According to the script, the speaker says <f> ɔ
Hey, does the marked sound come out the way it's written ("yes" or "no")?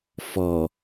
yes